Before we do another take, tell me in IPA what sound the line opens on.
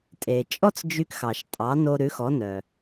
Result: tʼ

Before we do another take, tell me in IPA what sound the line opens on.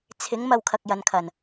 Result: t͡sʰ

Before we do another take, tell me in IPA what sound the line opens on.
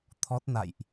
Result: t̪ʰ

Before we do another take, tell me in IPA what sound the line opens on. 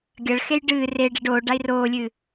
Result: ɡʲ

